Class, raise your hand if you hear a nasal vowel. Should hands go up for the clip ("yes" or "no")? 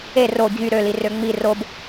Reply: no